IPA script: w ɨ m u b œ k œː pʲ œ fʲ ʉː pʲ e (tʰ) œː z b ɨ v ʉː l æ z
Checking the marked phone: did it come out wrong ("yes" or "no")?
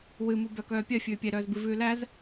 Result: yes